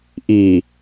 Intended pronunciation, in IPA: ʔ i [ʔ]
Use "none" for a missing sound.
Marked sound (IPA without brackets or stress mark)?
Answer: none